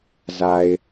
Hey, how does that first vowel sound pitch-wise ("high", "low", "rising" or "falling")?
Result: low